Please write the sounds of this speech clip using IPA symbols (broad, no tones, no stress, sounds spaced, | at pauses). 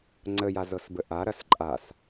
ŋ͡ǀ ə j a z ɤ s b ə ʔ a ɾ ɐ s ǃʼ a s